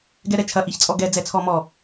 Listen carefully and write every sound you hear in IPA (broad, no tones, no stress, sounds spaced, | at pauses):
ɡ ɛ ɾ ɛ t͡ʃʰ ɐ ʔ i ç t͡sʼ ɔ ɡ ɛ d͡z ɛ t͡sʰ ɔ m ɔ